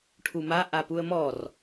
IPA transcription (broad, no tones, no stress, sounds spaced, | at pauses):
ʈʰ u m a ʔ a p u ə̯ m ɔ r